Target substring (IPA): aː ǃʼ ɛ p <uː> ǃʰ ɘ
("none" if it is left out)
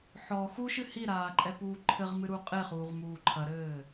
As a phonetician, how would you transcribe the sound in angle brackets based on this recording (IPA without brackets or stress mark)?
uː